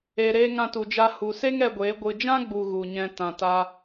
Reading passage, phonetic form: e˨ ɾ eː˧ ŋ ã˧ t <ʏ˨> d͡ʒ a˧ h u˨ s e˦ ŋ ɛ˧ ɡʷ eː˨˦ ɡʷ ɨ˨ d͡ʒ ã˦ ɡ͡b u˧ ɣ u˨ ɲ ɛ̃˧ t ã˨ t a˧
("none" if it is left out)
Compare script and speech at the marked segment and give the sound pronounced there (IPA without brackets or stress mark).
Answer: u˨